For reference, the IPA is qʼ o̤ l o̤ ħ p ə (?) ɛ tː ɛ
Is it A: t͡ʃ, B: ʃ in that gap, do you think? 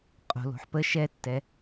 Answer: B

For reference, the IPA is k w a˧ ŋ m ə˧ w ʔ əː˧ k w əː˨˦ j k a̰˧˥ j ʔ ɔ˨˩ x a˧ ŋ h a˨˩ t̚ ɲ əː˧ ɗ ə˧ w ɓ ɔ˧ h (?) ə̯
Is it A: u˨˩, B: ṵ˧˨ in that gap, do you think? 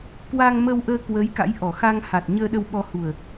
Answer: A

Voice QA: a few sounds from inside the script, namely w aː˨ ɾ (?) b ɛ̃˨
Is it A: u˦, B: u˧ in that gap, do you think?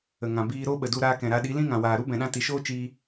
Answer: A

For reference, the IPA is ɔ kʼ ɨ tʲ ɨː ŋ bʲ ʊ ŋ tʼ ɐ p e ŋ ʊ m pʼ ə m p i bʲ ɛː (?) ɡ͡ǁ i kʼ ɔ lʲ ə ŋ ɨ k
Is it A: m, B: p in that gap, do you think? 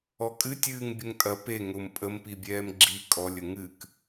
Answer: A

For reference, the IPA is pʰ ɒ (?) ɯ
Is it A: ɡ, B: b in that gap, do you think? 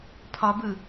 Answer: B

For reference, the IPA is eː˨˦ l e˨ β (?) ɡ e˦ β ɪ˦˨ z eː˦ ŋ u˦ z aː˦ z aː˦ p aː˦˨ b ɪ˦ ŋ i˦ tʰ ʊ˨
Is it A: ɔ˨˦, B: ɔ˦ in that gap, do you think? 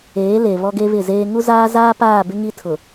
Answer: B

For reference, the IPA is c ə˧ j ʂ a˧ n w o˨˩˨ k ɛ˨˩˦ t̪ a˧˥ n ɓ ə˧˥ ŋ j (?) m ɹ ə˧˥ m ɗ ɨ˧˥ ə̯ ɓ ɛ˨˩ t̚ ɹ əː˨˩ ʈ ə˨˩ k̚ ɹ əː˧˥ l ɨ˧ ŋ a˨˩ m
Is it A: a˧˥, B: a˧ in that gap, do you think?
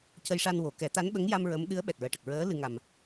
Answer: B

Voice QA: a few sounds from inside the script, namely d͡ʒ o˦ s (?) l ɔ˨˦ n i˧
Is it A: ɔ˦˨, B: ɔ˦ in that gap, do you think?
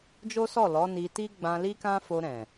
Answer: A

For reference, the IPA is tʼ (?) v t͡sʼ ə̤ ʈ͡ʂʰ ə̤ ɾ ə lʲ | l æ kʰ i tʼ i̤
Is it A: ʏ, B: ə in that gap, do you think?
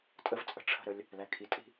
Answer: B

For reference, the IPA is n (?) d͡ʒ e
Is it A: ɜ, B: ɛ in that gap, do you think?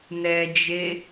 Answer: B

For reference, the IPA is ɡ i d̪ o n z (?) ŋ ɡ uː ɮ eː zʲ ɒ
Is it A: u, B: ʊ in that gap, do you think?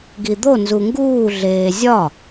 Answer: A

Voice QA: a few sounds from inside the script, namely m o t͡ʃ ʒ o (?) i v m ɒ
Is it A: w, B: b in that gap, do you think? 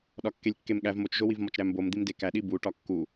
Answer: A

